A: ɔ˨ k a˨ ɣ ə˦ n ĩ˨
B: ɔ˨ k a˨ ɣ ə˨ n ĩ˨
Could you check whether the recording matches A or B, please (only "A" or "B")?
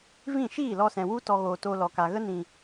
A